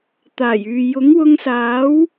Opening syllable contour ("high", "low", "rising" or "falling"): low